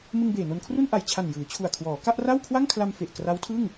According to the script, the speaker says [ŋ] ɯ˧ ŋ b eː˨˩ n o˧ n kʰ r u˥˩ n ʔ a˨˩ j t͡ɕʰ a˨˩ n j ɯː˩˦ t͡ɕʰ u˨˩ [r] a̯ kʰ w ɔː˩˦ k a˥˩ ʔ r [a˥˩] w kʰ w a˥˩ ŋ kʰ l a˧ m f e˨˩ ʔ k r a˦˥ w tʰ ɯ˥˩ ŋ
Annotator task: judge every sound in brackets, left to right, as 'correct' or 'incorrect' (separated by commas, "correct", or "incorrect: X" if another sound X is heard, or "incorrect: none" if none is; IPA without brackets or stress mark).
incorrect: m, incorrect: none, correct